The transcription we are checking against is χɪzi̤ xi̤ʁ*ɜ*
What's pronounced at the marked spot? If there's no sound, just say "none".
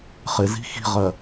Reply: ɜ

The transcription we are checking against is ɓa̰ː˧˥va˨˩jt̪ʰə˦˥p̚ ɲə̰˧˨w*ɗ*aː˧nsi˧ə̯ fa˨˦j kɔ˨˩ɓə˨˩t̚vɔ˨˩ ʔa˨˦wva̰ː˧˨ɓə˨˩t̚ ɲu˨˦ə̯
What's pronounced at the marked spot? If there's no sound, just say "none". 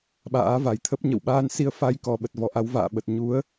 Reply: ɓ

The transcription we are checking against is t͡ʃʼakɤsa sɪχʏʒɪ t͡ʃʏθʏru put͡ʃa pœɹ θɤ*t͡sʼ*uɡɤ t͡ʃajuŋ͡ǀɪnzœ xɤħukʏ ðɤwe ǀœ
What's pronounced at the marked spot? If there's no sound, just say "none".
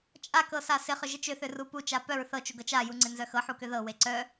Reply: t͡ʃ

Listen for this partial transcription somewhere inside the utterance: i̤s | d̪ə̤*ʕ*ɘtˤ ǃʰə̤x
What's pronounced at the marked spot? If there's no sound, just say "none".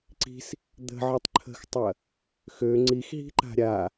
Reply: ʕ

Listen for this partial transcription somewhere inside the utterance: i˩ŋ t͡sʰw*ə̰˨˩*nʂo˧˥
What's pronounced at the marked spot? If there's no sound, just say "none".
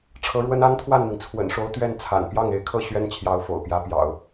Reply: ə̰˨˩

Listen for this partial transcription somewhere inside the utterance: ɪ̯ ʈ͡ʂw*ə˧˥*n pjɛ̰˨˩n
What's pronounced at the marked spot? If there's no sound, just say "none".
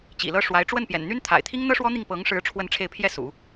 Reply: ə˥˩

